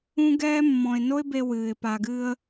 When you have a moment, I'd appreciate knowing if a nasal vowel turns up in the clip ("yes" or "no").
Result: yes